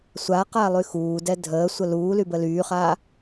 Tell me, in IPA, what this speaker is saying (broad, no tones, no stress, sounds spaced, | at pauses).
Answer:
sʷ a q a lˠ y x uː d ɛ dʱ əː sʷ ə l uː l y b ə l yː χ aː